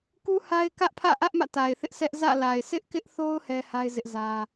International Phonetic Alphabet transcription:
k u˦ h a˦ ɪ̯ k ä˦ ʔ pʰ ä̰˦˨ ʔ ä˦ ʔ m ä̰˦˨ t a˨ ɪ̯ θ ɪ˦ ʔ sʰ ɛ˦ ʔ z ä̰˦˨ l a˨ ɪ̯ sʰ ɪ˦ ʔ k ɪ˦ ʔ θ o˦ ʊ̯ h ɛ˦ h a˦ ɪ̯ z ɪ˦ ʔ z ä˦

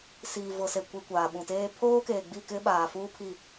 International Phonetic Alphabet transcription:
s iː˨ v ʊ˨ s e˨ kʷ i˨ kʷ aː˨ ɓ ũ˨ t eː˦ pʰ oː˦ k eː˨ ɡ͡b i˦˨ k ɪ˦ ɓ aː˨ f uː˦ pʰ i˦˨

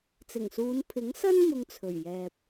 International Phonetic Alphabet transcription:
t͡s ɪ˨˩ ŋ s uː˨˧ n pʰ ɪ˨˥ ŋ s ɐ˥ n m ʊ˧ ŋ t͡sʰ ɵ˨˩ ɥ j ɛː˨ p̚

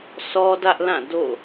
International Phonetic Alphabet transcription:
s ɔ˦ d ä˦ ʔ l ã˦˨ d o̰˦˨

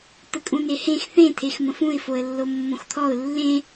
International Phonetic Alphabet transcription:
t̪ ə kʼ ũ n e h ẽ x θ ẽ tʰ e x m ə̃ f ũ ɪ̯ f o ə̯ lː o mː õ x t̪ʰ ɔ ʊ̯ lː ẽ

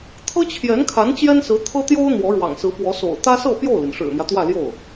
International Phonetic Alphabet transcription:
t̪ʰ ɤ˥ t͡ɕʰ j ɛ˧˥ n kʰ a˧˥ n t͡ɕ j ɛ˥ n s ɹ̩˧˥ t̪ʰ ɤ˥ t̪ j o˥ ʊ̯ n̪ w ɔ˧˥ ɻ w ɑ̰˨˩ ŋ s ɹ̩˧˥ p w ɔ˧˥ s o̰˨˩ ʊ̯ t̪ ä˥ s ɤ˥˧ p j o˥˩ ʊ̯ l i˩ n ʂ ɻ̩˨˩ n̪ j ä˦ t̪ w ä˥˧ l j o˥˩ ʊ̯

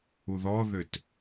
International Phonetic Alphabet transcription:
u ð ɔ ð ʏ t

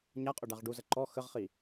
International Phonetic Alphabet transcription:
ɲ a qʼ ʊ ɖ a ʁ ɖ u z ə ǃ ɔ x ə ʁ χ i

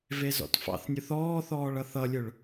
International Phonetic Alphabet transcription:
v e z ɔ̰ t f ɑ̰ θ nʲ ʊ θ ɔː θ ɔː ɭ ʌ θ ʌ lʲ ʊ ɭ

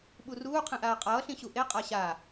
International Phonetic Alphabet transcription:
ɓ u r uː qʰ ĩ ʔ aː qʼ ʌː ɬ ĩ ɕ u ʔ e qʼ a ɕ a

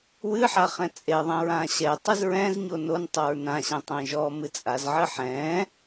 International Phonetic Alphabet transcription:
w ɨ ħ a χ ɛ̃ t͡sʼ e ðˤ ɛ̃ ɹ ã ɕ ɛ tˤ ɨ z ɹ ɛ̃ z ɲ o n o n tˤ o ɹ n ã ɕ ɛ̃ tˤ ẽ ʒ ɔ m ɨ t͡sʼ a z ʕ ɘ ħ ɛ̃

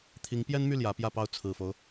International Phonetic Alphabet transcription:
t̪ʰ i˧˥ ŋ p j ɛ˥ n m y˥˩ l j ä˧˥ p j ä˥˧ p ɑ˥˩ ʊ̯ t͡sʰ ɹ̩˨˩ f o˦ ʊ̯

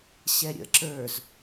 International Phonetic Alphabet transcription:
ɕ ɛ ɾʲ ə̰ ǁ ə˞ z

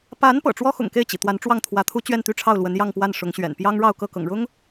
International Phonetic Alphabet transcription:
p a˧˥ n p ɤ̰˨˩ ʈ͡ʂ w ɔ˥ x ʊ̰˨˩ ŋ k e˥˩ ɪ̯ t͡ɕ ḭ˨˩ t̪ w a˧˥ n ʈ͡ʂ w ɑ˥˩ ŋ t̪ʰ w ä˧˥ t̪ʰ u˥ t͡ɕ ɥ ɛ˥˧ n t̪ y˥˧ ʈ͡ʂʰ ɑ˥˩ ʊ̯ l w ə˧˥ n j ɑ˥˧ ŋ p w a˥˩ n ʂ ʊ˧˥ ŋ ɕ ɥ ɛ̰˨˩ n p j ɑ˥ ŋ ɻ ɑ˥˧ ʊ̯ k ɤ˥˩ k ɤ̰˨˩ ŋ ɻ ʊ˥ ŋ

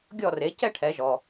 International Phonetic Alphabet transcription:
ɡʲ ɔ˥˩ r e˩˥ c ɛ˥ ʈʰ ɛ˩˥ ʒ ɔ˩

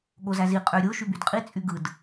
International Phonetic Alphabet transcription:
ɠ o z æ z i qʼ ø ɾʲ o ʃ y b y d qʼ i t͡sʼ y ɡ ɯ d

